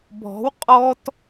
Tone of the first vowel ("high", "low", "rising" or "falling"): rising